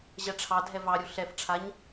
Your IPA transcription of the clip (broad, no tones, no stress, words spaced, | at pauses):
ʑɛʈ͡ʂʰɑdʱɛ vɑɾʲu ɬɛfʈ͡ʂʰaɲ